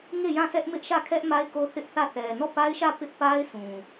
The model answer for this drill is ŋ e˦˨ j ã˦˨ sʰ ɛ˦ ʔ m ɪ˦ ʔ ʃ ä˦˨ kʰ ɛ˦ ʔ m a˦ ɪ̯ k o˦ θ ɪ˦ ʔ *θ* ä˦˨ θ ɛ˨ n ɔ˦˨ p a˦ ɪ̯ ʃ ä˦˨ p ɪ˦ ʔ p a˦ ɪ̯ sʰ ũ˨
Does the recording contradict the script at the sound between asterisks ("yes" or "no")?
no